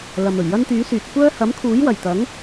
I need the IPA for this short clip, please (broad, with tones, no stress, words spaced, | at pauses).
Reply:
lɐ˨mɵ˨˩ɥ jɐ˥nt̪yː˨˥syː˨t̚ kʷœː˥ hɐ˨˥mkʰuː˨˥jwɐ˨˩jt̪ɐ˨˥ŋ